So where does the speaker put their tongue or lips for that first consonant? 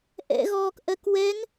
throat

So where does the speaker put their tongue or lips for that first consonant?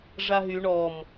retroflex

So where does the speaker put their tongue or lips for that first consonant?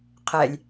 uvula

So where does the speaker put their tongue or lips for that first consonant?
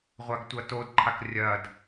uvula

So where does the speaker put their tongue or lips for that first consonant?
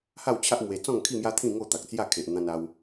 throat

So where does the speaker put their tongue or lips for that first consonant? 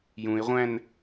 palate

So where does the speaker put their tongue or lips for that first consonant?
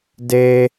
tongue tip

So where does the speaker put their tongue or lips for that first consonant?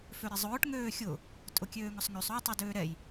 lips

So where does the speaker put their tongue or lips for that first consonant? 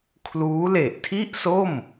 velum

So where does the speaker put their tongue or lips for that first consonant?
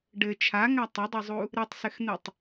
retroflex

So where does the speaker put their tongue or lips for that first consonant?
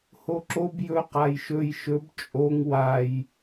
throat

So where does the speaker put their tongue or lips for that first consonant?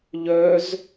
palate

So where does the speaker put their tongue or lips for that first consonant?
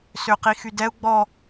tongue tip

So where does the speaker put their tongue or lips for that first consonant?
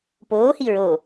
lips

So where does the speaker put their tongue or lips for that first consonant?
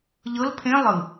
palate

